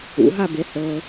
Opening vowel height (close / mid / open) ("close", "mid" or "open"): close